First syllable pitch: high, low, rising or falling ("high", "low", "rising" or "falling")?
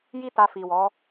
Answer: high